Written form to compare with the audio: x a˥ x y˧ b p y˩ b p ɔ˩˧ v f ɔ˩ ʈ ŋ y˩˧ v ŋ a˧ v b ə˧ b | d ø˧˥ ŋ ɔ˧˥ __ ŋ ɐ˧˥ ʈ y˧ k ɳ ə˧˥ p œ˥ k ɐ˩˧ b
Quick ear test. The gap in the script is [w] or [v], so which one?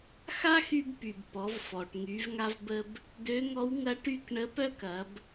w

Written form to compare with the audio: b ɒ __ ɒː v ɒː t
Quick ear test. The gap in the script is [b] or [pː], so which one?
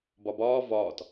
b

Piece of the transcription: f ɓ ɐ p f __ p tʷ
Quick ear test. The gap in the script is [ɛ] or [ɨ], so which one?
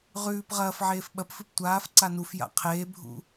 ɨ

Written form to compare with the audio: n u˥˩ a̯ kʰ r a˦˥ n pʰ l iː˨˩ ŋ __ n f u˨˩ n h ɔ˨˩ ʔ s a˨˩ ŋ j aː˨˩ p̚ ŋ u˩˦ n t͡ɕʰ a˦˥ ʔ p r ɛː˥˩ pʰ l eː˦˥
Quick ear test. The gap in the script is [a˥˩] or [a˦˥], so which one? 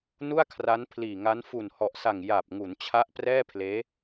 a˦˥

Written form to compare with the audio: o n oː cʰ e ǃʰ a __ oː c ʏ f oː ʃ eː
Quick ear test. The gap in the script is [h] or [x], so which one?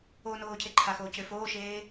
x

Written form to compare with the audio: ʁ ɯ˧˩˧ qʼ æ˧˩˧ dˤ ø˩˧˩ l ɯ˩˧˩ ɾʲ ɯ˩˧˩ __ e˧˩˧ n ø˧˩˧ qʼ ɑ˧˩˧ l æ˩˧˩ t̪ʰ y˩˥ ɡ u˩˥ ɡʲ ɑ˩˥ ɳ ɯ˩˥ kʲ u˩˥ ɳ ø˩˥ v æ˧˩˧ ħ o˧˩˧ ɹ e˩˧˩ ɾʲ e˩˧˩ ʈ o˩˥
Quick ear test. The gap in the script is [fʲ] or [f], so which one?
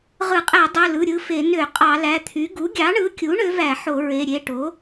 f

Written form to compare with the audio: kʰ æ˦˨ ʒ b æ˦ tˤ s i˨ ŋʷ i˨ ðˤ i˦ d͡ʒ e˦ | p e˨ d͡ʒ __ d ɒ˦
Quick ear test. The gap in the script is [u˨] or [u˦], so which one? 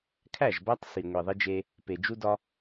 u˦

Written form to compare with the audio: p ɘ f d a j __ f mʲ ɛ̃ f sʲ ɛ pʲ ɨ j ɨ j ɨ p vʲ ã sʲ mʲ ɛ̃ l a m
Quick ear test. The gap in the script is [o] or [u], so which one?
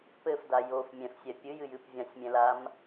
o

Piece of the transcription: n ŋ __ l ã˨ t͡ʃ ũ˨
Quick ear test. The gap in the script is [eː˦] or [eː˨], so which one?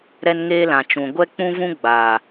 eː˦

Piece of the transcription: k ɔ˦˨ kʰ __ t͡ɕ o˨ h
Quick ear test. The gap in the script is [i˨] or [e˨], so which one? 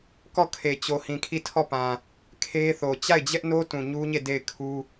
e˨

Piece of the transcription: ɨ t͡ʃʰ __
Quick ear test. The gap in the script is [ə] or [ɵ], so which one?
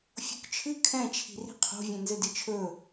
ɵ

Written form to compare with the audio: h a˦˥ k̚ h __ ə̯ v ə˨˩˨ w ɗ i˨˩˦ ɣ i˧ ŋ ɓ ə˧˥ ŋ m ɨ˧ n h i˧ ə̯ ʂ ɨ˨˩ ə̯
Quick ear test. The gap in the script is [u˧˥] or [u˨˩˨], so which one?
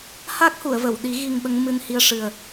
u˨˩˨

